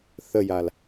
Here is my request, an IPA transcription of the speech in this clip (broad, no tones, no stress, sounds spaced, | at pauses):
θ ə j a l